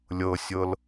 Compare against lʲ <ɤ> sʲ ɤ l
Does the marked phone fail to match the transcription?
no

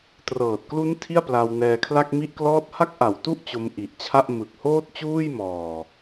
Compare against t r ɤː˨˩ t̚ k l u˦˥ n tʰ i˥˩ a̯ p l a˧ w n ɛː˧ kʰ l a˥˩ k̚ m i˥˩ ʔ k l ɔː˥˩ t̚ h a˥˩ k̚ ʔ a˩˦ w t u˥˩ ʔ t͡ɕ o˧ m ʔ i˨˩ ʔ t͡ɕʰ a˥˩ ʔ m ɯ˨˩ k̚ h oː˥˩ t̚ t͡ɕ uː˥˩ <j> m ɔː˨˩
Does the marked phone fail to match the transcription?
no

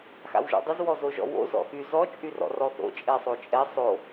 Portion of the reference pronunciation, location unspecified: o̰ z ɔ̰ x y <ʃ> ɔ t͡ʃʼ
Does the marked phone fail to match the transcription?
yes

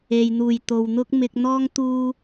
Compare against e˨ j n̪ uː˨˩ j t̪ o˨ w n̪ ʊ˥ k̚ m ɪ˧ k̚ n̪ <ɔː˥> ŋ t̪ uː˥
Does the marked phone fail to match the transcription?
no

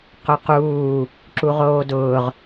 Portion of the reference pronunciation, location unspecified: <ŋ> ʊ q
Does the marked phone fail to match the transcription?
yes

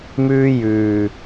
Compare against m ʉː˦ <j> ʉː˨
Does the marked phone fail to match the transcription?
no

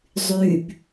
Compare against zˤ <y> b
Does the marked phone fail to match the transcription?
no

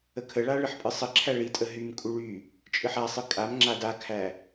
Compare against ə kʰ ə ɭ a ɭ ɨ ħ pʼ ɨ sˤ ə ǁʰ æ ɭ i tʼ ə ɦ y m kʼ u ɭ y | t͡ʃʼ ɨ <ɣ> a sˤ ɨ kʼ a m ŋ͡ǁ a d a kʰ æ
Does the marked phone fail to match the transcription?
yes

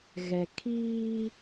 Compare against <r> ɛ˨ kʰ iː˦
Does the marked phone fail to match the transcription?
yes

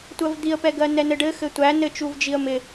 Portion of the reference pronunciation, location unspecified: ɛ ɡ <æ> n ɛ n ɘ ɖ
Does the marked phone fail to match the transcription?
yes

